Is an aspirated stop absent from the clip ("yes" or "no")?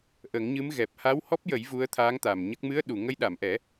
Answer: no